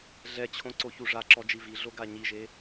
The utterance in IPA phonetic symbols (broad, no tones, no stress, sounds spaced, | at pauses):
ɮ ɛ t͡ɕʰ õ ǀ o ç u ʐ a ǁ ɔ d͡ʒ i v i ɮ o ɡ a ɲ i ʒ e